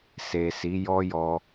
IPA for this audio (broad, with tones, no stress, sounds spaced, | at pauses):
s e˨ s i˨˦ j ɔ˦ j ɔ˦